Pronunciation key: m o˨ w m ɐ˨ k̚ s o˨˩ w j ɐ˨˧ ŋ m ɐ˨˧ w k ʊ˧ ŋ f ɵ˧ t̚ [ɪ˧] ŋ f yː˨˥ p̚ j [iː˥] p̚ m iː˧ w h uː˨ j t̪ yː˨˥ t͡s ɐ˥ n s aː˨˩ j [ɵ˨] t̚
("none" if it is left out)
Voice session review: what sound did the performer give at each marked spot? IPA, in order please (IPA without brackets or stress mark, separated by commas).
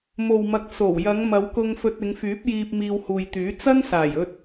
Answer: ɪ˨˧, iː˧, ɵ˧